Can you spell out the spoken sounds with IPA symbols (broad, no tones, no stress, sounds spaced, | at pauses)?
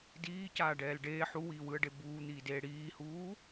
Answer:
d iː c aː ɖ ɛː l ɖ eː ħ u w iː w ɯ ə̯ ɖ e b uː n̪ iː d eː ɽ iː h uː